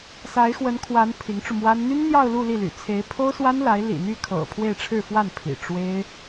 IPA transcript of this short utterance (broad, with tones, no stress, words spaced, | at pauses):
sa˧˥ɪ̯xwə˧˥nkʰwa˧˥n pʰi˧˥ŋʈ͡ʂu˧mwa˥n n̪y˥nn̪jɑ˥˧ʊ̯ lu˥˧li˥˩ly̰˨˩ t͡sʰe˧˥ɪ̯pʰo˥ʊ̯swa˥nla˧˥ɪ̯ lḭ˨˩n̪y˥˩kʰɤ̰˨˩ pʰwe˥˧ɪ̯ʈ͡ʂʰɻ̩˥˧fwa˥˩npʰḭ˨˩ ʈ͡ʂwe˥ɪ̯